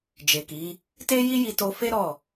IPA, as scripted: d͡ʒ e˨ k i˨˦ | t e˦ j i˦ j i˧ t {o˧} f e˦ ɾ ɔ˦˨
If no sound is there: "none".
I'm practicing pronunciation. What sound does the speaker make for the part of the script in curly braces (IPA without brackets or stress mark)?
o˧